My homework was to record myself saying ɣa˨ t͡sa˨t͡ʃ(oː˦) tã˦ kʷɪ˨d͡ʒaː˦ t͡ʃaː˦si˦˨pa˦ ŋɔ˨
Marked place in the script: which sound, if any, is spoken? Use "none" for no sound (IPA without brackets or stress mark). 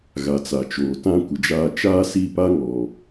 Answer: oː˨